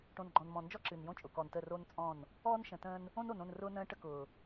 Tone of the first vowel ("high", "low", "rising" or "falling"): low